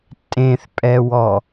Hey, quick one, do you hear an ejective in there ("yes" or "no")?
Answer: yes